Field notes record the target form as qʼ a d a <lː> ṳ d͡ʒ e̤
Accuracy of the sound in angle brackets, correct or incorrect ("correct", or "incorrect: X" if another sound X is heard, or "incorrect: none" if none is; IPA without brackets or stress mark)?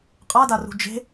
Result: incorrect: r